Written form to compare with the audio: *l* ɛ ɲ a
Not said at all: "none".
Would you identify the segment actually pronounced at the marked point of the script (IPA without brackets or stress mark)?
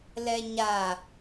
l